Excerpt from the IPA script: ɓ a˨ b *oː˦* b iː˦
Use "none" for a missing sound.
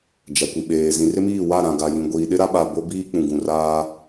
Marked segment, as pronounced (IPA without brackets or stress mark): o˦